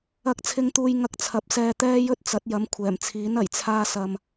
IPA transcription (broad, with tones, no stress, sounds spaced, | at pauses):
ɐ˨˥ k̚ t͡sʰ ɪ˨ ŋ t̪ uː˨ j ŋ ɐ˧ k̚ t͡sʰ ɐ˨˥ p̚ s ɛː˧ t̪ ɛː˥ j ɵ˥ t̚ t͡s ɐ˨˥ t̚ j ɐ˨˧ m kʷʰ ɛː˨˩ m t͡sʰ iː˨˥ n ɐ˨˩ j t͡sʰ aː˧ s ɐ˨ m